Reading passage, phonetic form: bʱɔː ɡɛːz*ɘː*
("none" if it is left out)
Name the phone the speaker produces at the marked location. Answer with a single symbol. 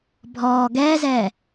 ɛː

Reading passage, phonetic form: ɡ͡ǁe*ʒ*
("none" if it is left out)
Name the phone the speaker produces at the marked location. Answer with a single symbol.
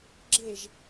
ʒ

